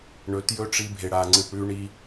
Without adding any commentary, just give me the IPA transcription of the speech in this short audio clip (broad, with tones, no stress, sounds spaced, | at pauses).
ɳ ɵ˨˦ t j ɵ˦ ʈ͡ʂ i˧ bʱ e˨ ɽ a˨ ŋ͡ǀ ɨ˨ p ɽ ʉ˧ ɳ i˧